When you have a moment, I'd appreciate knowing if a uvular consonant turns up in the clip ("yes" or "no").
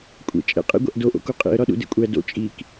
yes